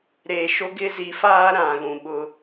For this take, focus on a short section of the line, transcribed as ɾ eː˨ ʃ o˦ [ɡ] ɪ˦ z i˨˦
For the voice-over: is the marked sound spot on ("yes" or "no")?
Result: yes